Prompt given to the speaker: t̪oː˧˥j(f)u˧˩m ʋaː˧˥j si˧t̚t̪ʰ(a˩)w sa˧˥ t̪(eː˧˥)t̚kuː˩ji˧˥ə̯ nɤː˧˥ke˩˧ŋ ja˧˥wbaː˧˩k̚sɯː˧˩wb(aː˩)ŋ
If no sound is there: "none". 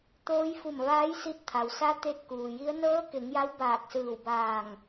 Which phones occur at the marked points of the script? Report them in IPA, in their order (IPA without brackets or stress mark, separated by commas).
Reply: f, a˩, e˧˥, aː˧˩